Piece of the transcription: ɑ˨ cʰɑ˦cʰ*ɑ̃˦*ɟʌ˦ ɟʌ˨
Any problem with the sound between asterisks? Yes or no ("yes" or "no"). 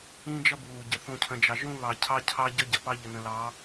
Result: yes